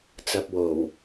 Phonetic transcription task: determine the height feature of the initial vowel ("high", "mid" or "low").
low